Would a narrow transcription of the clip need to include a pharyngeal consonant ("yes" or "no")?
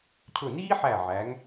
yes